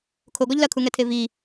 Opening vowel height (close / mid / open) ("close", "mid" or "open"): mid